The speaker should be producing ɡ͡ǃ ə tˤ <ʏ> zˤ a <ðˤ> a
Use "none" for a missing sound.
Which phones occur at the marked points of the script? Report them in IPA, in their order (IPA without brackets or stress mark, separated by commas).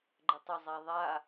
ʏ, ðˤ